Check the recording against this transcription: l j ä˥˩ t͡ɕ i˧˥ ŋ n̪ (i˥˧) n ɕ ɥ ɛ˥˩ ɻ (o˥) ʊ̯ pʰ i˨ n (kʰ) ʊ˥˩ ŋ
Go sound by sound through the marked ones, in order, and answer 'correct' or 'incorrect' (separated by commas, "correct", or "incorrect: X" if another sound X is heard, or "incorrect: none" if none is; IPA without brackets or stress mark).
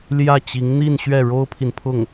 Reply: correct, correct, incorrect: pʰ